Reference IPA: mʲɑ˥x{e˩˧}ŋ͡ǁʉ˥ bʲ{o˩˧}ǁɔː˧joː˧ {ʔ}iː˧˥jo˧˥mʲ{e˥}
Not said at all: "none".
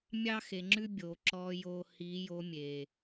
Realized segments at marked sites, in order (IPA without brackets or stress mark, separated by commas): e˩˧, o˩˧, h, e˩